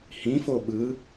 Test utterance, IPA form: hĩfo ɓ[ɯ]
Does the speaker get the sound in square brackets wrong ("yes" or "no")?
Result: no